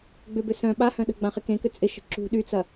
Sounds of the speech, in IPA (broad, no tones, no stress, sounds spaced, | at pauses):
ɡ͡b ʏ b ʏ s œ̃ ɓ a h œ̃ ɗ ə̤ ɡ͡b ã χ ɪ k ẽ k ʏ t͡sʼ ɪ ʃ ə̤ ǁ ṳ ɗ y t͡s ɐ